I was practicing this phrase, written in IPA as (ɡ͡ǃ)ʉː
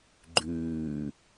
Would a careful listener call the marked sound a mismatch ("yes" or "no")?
no